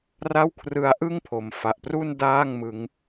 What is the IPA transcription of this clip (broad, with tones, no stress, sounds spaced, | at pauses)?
r a˥˩ w kʰ r ɯ˦˥ a̯ ʔ ɯ˥˩ ŋ pʰ o˨˩ m f a˨˩ ʔ p r u˥˩ n d aː˥˩ ŋ m ɯ˦˥ ŋ